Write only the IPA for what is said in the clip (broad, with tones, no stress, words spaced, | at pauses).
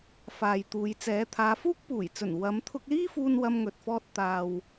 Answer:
faː˨jt̪uː˨˧jt͡sɛː˨˧ t̪ʰaː˨˧fuː˥k̚puː˨˩jt͡sɵ˨˩n wɐ˨˧mt̪ʰʊ˧k̚liː˥fuː˧n wɐ˧mŋɵ˨t̚fɔː˧t̚ t̪aː˨w